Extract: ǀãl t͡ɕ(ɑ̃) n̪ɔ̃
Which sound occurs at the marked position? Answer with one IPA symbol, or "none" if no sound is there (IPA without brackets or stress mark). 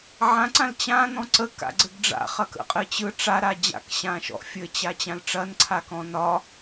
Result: ã